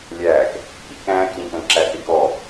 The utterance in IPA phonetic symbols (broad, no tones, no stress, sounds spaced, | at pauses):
lʲ æː k | ḭ k æ̃ː k ʎ ĩ k ə̃ː ǁ æ θ i k ɔː